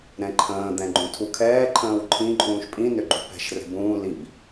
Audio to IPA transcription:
ɾɛ̃ǃʰə̃ː d̪ɛ̃ɡ͡ǃũtʰukʰɛː ǃʰə̃ːwǃʰĩ ǃʼũːʃpʼĩ nʏɡ͡ǃṳpɛ̤ʃ rɛ̤bũː lib

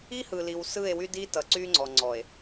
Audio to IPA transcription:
i˦hɯ˨li˨w sɯ˦˨e̯wy˦di˦ tʌ˨ǀy˦ŋ͡ǀɔ˨ ŋ͡ǀɔ˨e̯

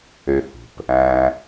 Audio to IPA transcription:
ø˨hṳ˩p | æ̃˨

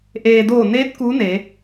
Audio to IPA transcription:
ʔeː˩doː˧˩neː˧˥t̚ kuː˧˥ne˩˧

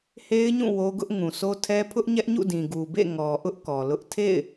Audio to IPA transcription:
he˦ɪ̯ɲũ˦˨ wo˦ɡʊ˦ʔ ŋũ˨so˦tʰɛ˦ pʰʊ˦ʔɲɛ˦ʔɲṵ˦˨dĩ˨ ɡu˨bḛ˦˨ ŋɔ˨ʔʊ˦ʔ kɔ˨lʊ˦ʔ tʰḛ˦˨ɪ̯

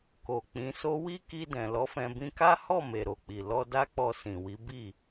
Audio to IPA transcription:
ko˨k͡pĩ˨˦so˦ wi˦ki˧ dɛ̃˨lɔ˨˦fɛ̃˧ bĩ˧ka˦hɔ˦˨ me˨ɾo˨k͡pi˨ lɔ˧da˦k͡pɔ˧ sĩ˨wi˨˦bi˦˨

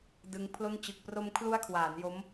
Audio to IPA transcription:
dɯ˦˥ŋpʰlo˥˩n t͡ɕɯ˨˩k̚pro˧m kʰlu˦˥a̯kʰwaː˩˦n jo˦˥m

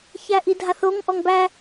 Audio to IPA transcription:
çæʔidʱaθoŋ ʔɔŋbæ

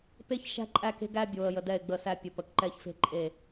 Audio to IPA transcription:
pe˦ç ʃæ̤˦ǃʼæ˦˨ke̤˦ ɡæ˦ bʲo˨ə̯ jə˨dɛ˦˨ɪ̯ɡ͡bə˦˨sæ˦ pʲə˨ pə˨kǃɛ˦çfe̤˦ ǃʼe˦˨

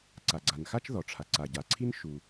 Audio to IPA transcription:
ǀa˩ɡ͡ǀa˩nxa˥t͡ʃ ðɔ˩ʈ͡ʂʰa˩ ǀa˩ɟa˩ǀʰi˥n ʃu˩

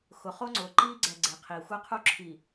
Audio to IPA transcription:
xʊ˨χo˦ ŋ͡ǀʊː˨ ǃiː˦ɡ͡ǀɛ˨ ɡ͡ǀe˨qʰiː˨ xʷɛ˦qʰu˦ ǁʰi˨

